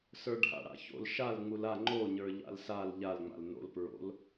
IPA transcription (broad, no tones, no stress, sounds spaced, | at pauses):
s ə˞ ɖʱ a̰ ɽ a̰ ç o̰ l ʃ a l ŋ͡m u l a ŋ͡ǃ o ɲ ə˞ ʎ a̰ l s a l ʎ a l ŋ͡m a̰ l n o̰ l p ɹ o̰ l